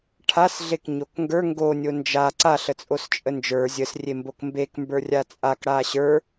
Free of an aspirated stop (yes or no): no